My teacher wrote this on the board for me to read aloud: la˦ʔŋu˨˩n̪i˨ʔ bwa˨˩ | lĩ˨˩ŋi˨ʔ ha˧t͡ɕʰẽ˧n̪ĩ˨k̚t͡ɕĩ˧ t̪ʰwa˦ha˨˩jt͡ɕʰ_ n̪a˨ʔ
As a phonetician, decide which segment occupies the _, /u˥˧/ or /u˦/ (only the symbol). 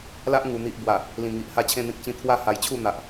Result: u˥˧